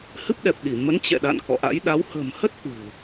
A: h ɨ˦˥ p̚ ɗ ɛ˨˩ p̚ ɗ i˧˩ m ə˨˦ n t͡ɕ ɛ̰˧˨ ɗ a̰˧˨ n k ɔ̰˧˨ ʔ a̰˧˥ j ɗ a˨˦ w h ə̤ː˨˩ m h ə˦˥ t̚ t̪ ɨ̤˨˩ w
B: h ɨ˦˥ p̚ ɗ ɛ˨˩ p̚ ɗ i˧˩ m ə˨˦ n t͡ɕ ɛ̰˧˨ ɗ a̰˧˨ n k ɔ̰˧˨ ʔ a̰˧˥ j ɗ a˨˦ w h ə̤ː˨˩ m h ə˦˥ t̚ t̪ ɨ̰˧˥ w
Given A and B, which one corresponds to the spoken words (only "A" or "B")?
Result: A